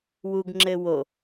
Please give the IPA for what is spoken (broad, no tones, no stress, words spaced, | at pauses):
wuɡŋ͡ǁɘ wo